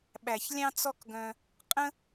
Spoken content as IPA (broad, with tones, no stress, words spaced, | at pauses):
ɓæ˨ç lʲɑ̃˦t͡sɔ˦kɡœ̃˧ | qʼə̃˦